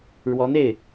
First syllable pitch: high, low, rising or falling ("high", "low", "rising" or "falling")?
rising